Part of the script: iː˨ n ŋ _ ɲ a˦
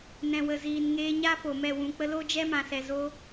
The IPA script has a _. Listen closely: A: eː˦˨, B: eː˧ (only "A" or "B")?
B